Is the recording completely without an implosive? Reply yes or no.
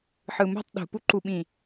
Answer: no